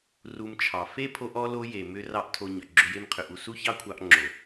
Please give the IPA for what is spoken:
r u˧ m t͡ʃʰ ɑ˨ f e˦ pʰ o˧ ʔ ɔ˧ l o˧ j e˨ m ʏ˦ r ɑ˦ ʔ tʰ o˧ ɲ ʏ˨ ɡ͡ǁ ʏ˧ j e˦ m qʰ ʏ˨ ʔ u˧ s u˦ ç ɑ˦ kʷʰ ɑ˧ ʔ ŋ͡ǁ o˨

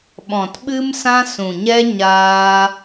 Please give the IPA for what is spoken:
ɓ ɔ̃˨ t ɓ ɨ˦ m s ã˦ s ũ˨ ɲ ɛ˦ ɲ aː˦

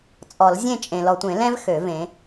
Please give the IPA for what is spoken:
t͡sʼ ɔ˨˩˦ l zʲ ẽ˥˩ t͡ʃʼ ẽ˨ l ɔ˨ tʷ ẽ˨˩˦ l ɛ̃˦ v x ø˨˩˦ v ẽ˨˦

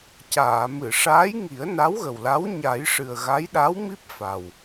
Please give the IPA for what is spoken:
c aː˨˩˨ m ɨ˨˩˨ ʂ aː˧˥ j ŋ i˨˩˦ ə̯ n a˧˥ w ɣ ə˨˩ w l a˧˥ w ɲ a˨˩˦ j ʂ ɨ˨˩ ə̯ ɣ a˧˥ j ɗ a˧˥ w m i˦˥ p̚ f a˨˩ w

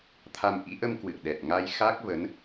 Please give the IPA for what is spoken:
t̪ʰ a˧ m ʔ ḭ˧˥ ʔ ə˧ m k w ɨ̰˧˨ ə̯ ɗ ɛ˨˩ t̚ ŋ a˧ j x a˦˥ k̚ v ə˨˦ n

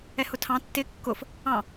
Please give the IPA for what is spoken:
ɛ h ʊ tʰ ɑ̃ tː ɪ kː ʊ f | ɑ̃

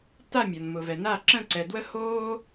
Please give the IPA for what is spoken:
t a˥˧ mʲ ɒ˨ n m ʊ˨ v ɛ˨ n a˥˧ ǁ ə̃˥˧ ǀ ɛ˨ d w ə˥ h oː˥

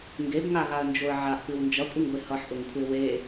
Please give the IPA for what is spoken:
ŋ ɡ e b ŋ a ɣ a ə̯ n d͡ʒ o ə̯ ʕ a ʔ p ɨ w n d͡ʒ ʌ kʷʼ ɨ ŋ ɡʷ e h ʌ ħ ʔ ʊ ŋ kʷʰ e w e

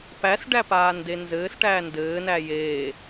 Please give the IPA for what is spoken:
p æ s ɖ æ p aː n d e n z ɘː s ʈ æː n d ɘː n æ j eː

